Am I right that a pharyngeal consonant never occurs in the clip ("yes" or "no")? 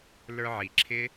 no